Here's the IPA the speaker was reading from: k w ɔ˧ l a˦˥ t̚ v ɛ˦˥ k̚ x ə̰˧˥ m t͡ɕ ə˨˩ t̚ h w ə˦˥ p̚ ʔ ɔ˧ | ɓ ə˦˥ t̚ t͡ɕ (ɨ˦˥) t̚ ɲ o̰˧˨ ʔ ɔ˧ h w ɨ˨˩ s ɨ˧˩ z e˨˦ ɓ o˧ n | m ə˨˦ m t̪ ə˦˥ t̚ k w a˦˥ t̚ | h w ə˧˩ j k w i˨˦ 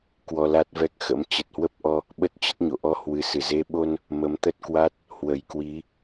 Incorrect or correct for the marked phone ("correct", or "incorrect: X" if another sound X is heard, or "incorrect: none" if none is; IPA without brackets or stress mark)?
incorrect: ə˦˥